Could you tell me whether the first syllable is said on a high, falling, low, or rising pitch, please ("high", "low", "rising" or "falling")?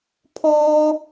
high